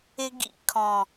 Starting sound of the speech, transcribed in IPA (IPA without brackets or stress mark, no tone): ɪ